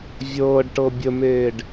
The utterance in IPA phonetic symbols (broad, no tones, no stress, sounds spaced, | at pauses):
vʲ ɤː ɖ ʈ ɤ bʲ ə m eː ɖ